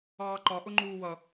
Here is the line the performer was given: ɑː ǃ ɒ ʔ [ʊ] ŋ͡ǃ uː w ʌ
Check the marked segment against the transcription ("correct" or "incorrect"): correct